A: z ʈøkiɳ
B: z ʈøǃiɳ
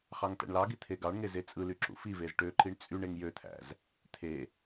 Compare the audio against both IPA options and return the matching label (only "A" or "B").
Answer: B